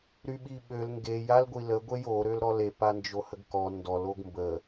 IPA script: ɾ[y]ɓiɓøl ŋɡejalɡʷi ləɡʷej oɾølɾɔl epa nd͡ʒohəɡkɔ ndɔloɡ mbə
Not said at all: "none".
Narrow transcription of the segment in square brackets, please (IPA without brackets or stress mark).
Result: y